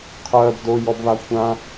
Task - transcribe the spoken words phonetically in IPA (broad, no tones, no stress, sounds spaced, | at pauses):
qʰ ɜ b d o j ɔ b β a kʷʰ ã